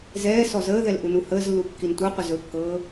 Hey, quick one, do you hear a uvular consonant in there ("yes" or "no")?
yes